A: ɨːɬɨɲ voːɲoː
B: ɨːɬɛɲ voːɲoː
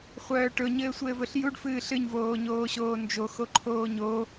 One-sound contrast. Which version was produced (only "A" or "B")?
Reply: A